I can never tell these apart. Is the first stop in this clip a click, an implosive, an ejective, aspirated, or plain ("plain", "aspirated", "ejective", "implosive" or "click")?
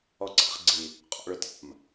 click